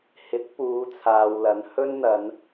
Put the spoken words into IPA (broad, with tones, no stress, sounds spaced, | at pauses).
h ɪ˨˥ k̚ p uː˨˧ t͡sʰ aː˨ w l ɐ˨˧ n h ɵ˥ n n̪ ɐ˨˧ n